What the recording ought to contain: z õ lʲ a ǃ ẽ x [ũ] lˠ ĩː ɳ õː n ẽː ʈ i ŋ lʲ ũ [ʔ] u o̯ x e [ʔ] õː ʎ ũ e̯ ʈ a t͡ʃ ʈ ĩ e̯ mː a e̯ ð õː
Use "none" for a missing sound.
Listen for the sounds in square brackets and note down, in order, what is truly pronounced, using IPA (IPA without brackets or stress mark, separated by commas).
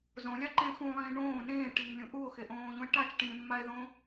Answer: ũ, ʔ, ʔ